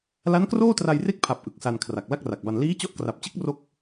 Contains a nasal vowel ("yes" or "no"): no